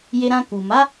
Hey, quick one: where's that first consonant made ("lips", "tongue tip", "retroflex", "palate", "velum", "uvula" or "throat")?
palate